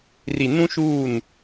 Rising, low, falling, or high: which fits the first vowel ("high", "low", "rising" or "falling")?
low